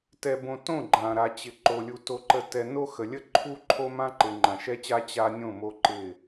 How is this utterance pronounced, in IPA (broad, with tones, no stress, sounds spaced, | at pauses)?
t ɛ˨ b õ˨ t õ˦˨ ɡ͡ǃ ã˨ ɾ a˨ t͡ɕ ɪ˨ ǃ o˨ lʲ u˨ t o˨ ǃ ə˨ t ɛ˨ n o˦ x ə˨ lʲ ə˦ ǃʰ u˦ ǃʰ o˦ m ã˦ ǃ ɪ˨ ŋ͡ǃ ã˨ ʃ ɛ˦ t͡ɕ a˦ t͡ɕ a˦ nʲ õ˦˨ m o˦ ǃ ɪ˦˨